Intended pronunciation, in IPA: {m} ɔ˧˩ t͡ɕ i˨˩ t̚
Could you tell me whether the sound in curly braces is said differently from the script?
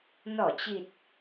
yes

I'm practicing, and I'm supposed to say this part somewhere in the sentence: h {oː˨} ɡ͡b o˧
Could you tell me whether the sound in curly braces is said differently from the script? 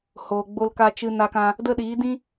no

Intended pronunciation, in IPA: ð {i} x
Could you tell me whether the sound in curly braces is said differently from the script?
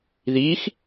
no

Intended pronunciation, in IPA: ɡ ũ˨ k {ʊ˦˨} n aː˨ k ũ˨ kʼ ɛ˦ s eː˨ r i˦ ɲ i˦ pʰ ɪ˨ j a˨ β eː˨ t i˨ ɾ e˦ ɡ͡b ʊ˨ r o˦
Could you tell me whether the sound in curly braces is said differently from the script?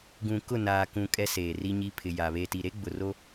no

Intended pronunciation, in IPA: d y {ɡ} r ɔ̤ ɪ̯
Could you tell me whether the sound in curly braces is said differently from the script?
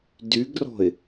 no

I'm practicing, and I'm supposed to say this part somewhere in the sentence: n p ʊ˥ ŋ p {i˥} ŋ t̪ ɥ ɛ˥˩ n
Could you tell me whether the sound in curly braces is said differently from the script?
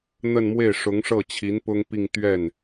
yes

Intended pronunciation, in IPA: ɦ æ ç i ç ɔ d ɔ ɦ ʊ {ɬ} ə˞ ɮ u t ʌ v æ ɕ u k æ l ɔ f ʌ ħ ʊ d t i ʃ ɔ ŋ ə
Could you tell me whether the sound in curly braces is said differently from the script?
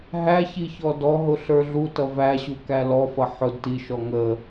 no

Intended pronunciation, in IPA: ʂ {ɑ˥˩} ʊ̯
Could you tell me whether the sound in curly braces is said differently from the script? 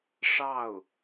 no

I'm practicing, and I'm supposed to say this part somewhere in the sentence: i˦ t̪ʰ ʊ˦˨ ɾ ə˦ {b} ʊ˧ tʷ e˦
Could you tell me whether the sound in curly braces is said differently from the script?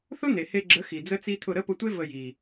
yes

